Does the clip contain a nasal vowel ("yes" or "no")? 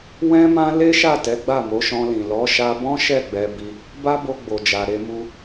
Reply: yes